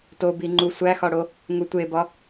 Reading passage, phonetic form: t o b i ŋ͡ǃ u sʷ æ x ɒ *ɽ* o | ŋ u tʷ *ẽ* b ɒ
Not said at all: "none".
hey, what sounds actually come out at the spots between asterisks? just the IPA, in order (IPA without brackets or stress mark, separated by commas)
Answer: ɽ, e